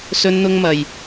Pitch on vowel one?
high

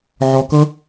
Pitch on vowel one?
low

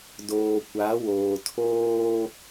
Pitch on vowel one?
low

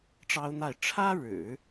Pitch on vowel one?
high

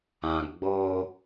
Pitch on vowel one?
low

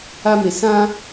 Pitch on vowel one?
high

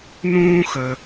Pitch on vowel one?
high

